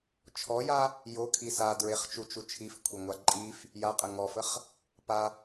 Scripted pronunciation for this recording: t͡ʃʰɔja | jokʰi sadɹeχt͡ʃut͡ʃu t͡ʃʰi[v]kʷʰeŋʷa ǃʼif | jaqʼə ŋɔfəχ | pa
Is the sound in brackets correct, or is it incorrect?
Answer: incorrect